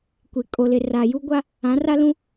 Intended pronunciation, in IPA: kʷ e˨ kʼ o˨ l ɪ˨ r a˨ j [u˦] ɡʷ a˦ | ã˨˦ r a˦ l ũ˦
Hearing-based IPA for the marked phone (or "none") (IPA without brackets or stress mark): u˦